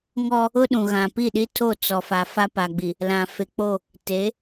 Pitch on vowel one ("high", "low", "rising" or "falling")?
high